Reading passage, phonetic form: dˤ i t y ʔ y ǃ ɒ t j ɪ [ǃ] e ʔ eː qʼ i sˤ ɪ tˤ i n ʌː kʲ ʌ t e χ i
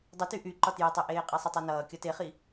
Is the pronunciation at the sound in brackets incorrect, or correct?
incorrect